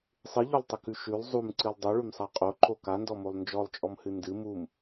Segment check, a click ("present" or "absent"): present